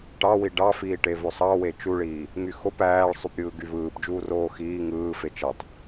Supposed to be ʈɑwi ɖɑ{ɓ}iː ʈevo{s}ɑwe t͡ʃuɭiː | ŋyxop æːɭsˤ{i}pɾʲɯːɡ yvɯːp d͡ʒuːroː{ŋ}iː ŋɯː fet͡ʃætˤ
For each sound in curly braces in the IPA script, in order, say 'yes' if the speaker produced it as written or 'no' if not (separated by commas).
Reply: no, no, no, no